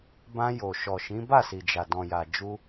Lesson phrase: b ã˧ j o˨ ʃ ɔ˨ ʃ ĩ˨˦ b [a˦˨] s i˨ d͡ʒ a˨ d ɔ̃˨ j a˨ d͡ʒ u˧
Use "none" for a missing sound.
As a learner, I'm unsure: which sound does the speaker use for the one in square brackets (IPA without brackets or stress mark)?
a˦˨